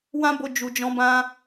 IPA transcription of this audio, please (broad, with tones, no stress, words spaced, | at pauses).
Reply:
wã˦bo˧d͡ʒu˨d͡ʒɔ̃˨˦ bã˧